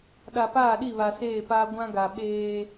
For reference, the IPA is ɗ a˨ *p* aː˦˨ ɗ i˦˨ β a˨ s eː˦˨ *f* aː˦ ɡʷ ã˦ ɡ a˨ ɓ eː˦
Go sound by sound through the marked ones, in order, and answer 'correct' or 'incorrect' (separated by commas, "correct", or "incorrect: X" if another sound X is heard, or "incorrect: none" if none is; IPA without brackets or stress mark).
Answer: correct, incorrect: p